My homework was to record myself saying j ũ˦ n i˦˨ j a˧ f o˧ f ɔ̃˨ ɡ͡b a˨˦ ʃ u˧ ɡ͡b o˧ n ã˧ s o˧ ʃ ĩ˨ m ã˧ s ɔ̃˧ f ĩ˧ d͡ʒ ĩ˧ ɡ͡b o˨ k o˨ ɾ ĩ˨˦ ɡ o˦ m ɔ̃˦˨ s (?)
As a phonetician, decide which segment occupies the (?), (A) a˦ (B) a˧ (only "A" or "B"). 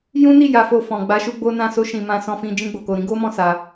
B